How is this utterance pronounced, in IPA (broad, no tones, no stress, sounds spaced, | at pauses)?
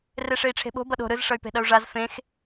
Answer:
r e ʂ e i̯ ʈ͡ʂʰ e̤ ɓ o̤ b ʌ ɗ o̤ ɾ ɯ z ʂ ʌ y̯ p e̤ ɗ ʌ u̯ ʐ a z f ẽ x